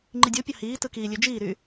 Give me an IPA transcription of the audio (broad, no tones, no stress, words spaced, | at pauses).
ŋ͡ǃidʲopʲɑ hiː tɯkiːlʲø d͡ʒiːɾy